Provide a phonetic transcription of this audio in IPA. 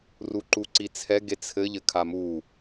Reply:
r u ǃ u ǀ i t͡sʰ ɛ ɡ e t͡sʰ ɘ ʎ ɘ kʰ a m u

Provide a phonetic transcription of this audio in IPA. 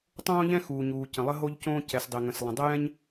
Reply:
tˤ õː˥ ʎ ɛ̃˥ x uː˩ ɲ uː˩ c ə̃˩ lˠ ə˥ ɦ o˥ ʎ c õː˥ c ɛ˩ s dˤ e˩ ŋ ə̃˩ s lˠ ə̃˩ dˤ ə˥ j ɛ̃˥ ɲ

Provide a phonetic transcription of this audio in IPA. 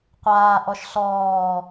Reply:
qʷ aː ʔ ɔ ʃ ɬ ɔː

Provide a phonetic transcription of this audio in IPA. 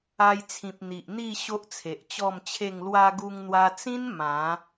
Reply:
a˧ j t͡sʰ ĩ˨ p̚ n̪ i˨ ʔ n̪ i˥˧ ɕ o˦ ʔ t͡sʰ e˨ ʔ t͡ɕ ɔ˥˧ m t͡ɕʰ e˥˧ ŋ l w a˧ ɡ u˧ ŋ n̪ w a˧ t͡s ĩ˦ n m ã˨˦

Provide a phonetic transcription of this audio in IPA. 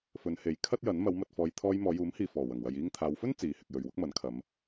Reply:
f ɵ˨˧ n h e˨˥ j kʰ ɐ˥ t̚ j ɐ˨˥ n m ɐ˨˧ w m ɐ˨ t̚ f ɔː˨˧ j t̪ʰ ɔː˧ j m ɔː˨˧ j uː˨˥ m h iː˨ f ɔː˨˩ w ɐ˨˩ ŋ w ɐ˨ j iː˧ ŋ t̪ʰ aː˨˧ w f ɵ˥ n t͡s iː˨ h ɪ˨ k̚ j ɵ˨ ɥ w ʊ˥ k̚ m ɐ˨˥ n kʰ ɐ˨˧ m

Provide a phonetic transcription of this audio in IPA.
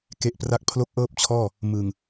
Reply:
k e˦˥ ʔ p r a˥˩ k̚ pʰ l o˦˥ k̚ ʔ ɤː˥˩ p̚ t͡ɕʰ ɔː˥˩ | m ɯ˨˩ ŋ

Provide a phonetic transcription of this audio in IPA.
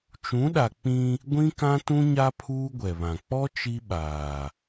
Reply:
t͡ʃ ũ˨˦ ɗ a˨ k͡p ĩ˦ | ɡʷ ĩ˦ k ã˦ t ũ˦ ɲ a˦ pʰ uː˦ ɡʷ ɛ˨ β ã˨ k͡p ɔ˦ t͡ʃ i˦ ɓ aː˨

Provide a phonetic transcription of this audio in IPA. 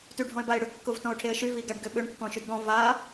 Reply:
t y ɖʱ ɔ̃ ɪ̯ b a ɪ̯ ɽ ʏ kː ʊ v t ɔ̃ ʊ̯ ʈʰ e ə̯ ʃ y v i ɡ a ɖ ɡ ʏ ɓ ʏ ɳ kː ɔ̃ ʃ y d ɡ ɔ̃ v a

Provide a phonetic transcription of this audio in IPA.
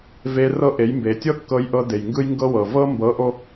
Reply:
v e˧ r ɤ˦ ʔ e˨˦ j m b e˨ tʲ ɤ˦ kː ɤ˧ j ʔ ɤ˧ d e˨ j ŋ ɡ ɯ˦ j ŋ ɡ ɤ˦ w ɤ˨ v ɤ˦ m b ɤ˨˦ ʔ o˧

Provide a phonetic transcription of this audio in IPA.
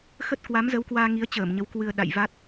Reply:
x ə˦˥ t̚ k w a˨˦ m z ə˨˦ w k w aː˧ ŋ i˨˦ ə̯ t͡ɕ əː˧˩ m ɲ ə˨˦ w k w ɨ˧ ə̯ ɗ a̰˧˨ j v a˦˥ t̚

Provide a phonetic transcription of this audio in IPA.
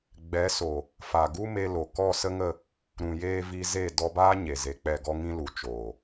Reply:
ɡ͡b ɛ˨˦ s o˨ | f a˨ ɡ u˦ m e˧ l o˨ k ɔ˦˨ s ə˦ ŋ ə˦˨ | ɾ ũ˨ j eː˧ v i˧ z e˦˨ d ɔ˧ b aː˦ ɲ e˨ z e˨ k͡p ɛ˦˨ ɡ ɔ˦ ŋ ĩ˦ l u˨ t͡ʃ oː˨

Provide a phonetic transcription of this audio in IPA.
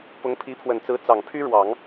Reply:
p ʊ˧˥ ŋ pʰ i˧˥ pʰ w ə˨˩ n t͡s ɹ̩˧˥ t͡s ɑ˨˩ ŋ pʰ y˥ ɻ w ɑ˨˩˦ ŋ

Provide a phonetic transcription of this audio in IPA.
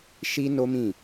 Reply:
ʃ i˦ n o˦ m ĩ˦˨

